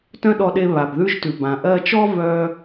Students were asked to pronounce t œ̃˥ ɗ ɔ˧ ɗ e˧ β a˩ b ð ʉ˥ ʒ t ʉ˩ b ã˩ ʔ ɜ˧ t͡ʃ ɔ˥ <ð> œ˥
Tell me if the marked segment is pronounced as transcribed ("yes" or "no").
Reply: no